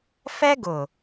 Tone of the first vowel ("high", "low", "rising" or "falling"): high